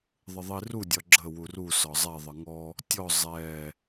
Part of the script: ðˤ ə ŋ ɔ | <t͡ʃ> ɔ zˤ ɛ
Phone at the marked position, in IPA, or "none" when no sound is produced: tʲ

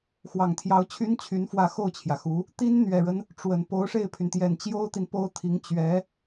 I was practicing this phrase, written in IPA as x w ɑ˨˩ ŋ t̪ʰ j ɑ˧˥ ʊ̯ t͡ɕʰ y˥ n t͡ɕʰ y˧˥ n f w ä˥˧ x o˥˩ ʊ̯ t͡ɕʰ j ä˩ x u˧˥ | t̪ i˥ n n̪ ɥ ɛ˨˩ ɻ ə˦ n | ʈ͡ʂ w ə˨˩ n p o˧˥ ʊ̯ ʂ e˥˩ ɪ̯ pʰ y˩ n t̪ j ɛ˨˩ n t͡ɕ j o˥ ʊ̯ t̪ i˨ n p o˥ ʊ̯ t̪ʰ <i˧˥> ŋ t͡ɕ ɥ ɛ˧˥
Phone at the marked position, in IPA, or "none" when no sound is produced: i˧˥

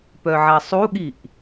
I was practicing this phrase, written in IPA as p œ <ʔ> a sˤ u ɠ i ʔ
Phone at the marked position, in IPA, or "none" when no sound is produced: ʕ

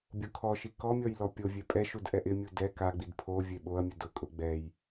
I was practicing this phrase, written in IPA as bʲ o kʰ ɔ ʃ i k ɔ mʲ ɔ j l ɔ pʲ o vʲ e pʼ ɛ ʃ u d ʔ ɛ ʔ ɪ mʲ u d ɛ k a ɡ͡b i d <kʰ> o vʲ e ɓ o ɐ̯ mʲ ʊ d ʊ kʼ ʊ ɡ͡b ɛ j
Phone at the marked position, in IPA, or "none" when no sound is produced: pʰ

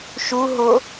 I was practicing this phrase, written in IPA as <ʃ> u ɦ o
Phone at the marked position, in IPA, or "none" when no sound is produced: ʃ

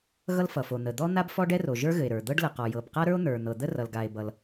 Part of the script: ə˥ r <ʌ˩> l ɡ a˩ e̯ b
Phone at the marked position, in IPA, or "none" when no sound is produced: ʌ˩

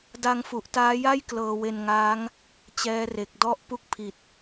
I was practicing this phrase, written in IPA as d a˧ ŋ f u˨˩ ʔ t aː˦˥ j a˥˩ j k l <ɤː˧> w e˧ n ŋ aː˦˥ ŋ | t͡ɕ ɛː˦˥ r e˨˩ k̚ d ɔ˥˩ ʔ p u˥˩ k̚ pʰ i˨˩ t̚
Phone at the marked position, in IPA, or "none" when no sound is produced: ɤː˧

